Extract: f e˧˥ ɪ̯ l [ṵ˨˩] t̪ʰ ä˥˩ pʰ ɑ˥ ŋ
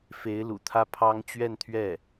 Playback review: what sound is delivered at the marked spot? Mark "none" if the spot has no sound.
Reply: ṵ˨˩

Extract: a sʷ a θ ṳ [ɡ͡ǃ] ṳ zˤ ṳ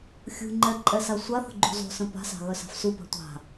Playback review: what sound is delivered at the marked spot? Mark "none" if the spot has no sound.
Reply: ɡ͡ǃ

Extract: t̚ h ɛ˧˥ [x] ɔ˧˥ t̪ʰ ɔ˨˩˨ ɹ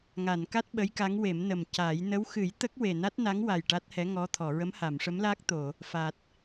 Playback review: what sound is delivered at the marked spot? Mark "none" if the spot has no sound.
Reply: ŋ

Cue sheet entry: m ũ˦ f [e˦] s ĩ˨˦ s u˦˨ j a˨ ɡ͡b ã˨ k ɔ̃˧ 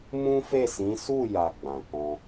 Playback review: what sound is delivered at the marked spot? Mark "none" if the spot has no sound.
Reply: e˦˨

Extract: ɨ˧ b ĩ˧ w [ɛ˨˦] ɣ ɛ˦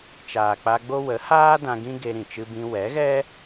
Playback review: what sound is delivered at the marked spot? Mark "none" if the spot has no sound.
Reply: ɛ˨˦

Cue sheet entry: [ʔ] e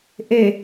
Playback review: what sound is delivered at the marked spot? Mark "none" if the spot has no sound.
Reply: ʔ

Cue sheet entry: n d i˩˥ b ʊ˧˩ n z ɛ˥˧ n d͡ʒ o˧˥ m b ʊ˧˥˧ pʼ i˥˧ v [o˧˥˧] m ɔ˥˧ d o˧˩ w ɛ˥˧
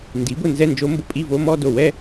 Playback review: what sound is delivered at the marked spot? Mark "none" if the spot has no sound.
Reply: o˧˥˧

